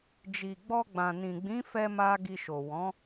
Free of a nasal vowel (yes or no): no